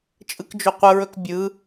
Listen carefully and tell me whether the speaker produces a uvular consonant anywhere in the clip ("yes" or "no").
yes